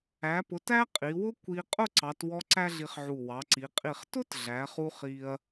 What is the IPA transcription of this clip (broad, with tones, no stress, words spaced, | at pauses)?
æ˩˧pʊ˩˧t æ˥qʼi˩˧wʊ˥ kʷi˧ qʼʊ˥˧ǀɑ˩˧twɔ˧ ǀæ˥ɮi˧χʕu˧˩ wɑ˩˧ǀi˩˧ qʼi˧˩χ tʊ˥t ɮæ˩˧χu˧ χi˧ɐ̯